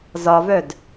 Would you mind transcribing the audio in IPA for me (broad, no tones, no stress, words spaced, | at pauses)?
zɒvœd